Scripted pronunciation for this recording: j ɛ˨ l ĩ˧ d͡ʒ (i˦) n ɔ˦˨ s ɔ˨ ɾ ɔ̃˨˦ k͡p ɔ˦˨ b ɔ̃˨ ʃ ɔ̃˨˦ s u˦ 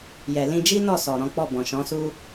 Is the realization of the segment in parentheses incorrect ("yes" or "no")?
no